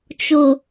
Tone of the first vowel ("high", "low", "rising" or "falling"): low